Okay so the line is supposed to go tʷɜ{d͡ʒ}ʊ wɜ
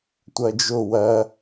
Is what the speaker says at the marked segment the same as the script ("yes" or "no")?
yes